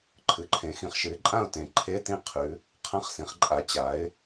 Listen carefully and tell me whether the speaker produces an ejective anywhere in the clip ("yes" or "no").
yes